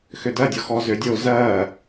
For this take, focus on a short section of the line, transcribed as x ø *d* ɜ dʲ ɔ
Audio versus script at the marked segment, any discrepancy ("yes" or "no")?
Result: no